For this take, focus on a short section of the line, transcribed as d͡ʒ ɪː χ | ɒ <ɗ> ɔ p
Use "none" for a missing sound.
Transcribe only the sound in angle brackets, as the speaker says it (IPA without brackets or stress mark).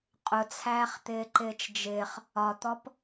t̪